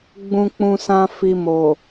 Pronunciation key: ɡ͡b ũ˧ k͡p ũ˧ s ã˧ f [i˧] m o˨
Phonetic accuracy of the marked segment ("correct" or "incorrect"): incorrect